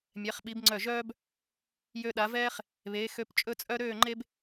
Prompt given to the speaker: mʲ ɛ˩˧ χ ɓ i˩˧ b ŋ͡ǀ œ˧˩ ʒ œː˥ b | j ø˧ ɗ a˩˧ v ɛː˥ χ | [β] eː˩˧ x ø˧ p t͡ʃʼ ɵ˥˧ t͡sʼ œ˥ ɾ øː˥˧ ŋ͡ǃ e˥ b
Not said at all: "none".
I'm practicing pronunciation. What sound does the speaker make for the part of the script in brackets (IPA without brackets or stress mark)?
β